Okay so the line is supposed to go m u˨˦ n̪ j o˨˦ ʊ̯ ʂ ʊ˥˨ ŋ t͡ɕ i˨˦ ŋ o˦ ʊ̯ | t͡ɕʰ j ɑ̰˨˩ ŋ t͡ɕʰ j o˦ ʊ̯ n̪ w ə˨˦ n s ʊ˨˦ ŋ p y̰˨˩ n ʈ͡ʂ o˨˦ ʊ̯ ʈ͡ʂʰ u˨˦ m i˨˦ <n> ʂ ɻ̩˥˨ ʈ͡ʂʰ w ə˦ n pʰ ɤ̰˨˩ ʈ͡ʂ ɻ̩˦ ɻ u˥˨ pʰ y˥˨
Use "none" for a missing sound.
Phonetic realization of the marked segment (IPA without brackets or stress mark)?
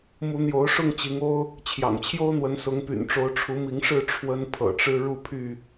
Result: ŋ